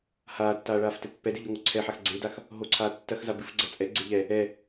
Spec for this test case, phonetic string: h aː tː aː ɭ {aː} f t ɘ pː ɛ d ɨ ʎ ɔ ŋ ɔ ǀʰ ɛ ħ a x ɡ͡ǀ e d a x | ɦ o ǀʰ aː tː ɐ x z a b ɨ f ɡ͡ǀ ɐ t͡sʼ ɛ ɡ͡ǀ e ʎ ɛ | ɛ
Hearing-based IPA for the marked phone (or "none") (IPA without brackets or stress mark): aː